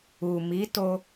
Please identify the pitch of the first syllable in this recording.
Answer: low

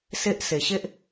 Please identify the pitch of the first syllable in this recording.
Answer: high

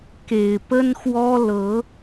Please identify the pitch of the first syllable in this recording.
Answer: low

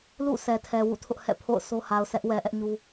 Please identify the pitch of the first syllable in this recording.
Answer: falling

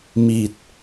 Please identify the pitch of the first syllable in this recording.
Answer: low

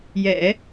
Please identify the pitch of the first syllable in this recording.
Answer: low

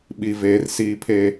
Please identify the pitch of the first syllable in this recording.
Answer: low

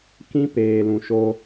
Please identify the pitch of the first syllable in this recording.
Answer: high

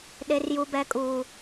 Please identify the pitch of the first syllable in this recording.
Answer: high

